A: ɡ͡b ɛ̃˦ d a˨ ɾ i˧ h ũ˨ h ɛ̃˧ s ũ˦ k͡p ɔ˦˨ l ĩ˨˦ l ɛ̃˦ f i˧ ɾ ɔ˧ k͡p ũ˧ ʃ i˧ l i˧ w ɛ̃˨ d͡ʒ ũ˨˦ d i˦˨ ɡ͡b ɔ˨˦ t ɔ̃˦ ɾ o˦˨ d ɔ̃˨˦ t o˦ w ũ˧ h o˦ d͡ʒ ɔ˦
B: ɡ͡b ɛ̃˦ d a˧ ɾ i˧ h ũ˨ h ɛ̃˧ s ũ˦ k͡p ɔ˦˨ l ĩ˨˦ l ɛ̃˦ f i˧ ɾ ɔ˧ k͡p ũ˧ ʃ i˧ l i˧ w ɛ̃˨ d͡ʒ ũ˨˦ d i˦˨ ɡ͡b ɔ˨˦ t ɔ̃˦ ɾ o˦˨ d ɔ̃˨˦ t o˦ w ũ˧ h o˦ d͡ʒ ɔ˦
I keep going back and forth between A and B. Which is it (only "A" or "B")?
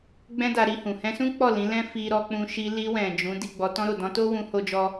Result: B